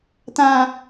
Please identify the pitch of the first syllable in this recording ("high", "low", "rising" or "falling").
high